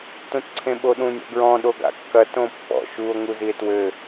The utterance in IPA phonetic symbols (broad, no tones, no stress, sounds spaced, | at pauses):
t ũ t ǀʰ ẽ ɓ o ɗ ũ nʲ ɔ̰ ɡ ɹ ɔ̃ ɗ o ɡ a̰ kː ɐ t õ pː ɔ̰ ʃ u o̯ ŋ u z i e̯ t w ɘ